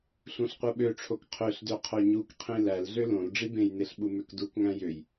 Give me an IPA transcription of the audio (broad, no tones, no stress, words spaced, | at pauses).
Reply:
ɬũɬqʷɯɓøʈ͡ʂʰok qʰøɬdø qʰoɲukqʰĩ lælɮø lõl ɖ͡ʐibẽjneɬ ɓumøkdukŋæ̃ jøj